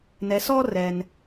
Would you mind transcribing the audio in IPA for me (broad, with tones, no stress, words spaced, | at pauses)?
nɛ˧sɔ˦ rɛ˦n